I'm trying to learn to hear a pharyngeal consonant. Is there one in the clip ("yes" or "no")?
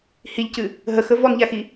no